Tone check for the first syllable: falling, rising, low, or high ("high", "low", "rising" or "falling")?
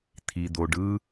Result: low